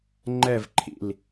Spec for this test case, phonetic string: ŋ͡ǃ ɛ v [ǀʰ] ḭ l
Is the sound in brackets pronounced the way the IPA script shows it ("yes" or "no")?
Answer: no